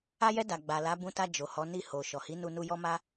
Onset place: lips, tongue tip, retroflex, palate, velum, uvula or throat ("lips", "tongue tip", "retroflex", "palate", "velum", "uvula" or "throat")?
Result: palate